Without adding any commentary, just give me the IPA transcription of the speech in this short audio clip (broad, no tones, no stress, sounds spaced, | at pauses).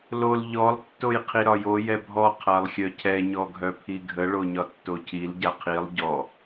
l o l ʎ ɔ lˠ tː o j qʰ i ɾ ɒ j o j ɛ bʱ ɔ qʰ a lˠ xʲ œ cʰ ɛ ɲ ɔ ɡʱ œ pʰ i ɡʱ ə ɭ o ɲ ɒ tː o cʰ i l ɟ a qʰ i lˠ ɟ ɔ